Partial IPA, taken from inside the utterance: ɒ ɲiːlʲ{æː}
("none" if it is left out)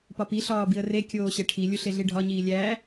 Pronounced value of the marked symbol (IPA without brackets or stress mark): æː